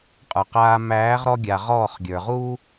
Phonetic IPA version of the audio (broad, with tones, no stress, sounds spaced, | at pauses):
qʼ ə˞˨ q aː˧ m æː˨˦ ʁ ɾ ɔ˧ ɡʲ a˨ ʁ ɔː˦˨ χ ɡʲ ə˞˨ ʁ uː˦